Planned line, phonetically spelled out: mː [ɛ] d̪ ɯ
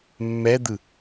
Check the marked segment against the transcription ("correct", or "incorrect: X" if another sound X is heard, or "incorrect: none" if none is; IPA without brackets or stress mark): correct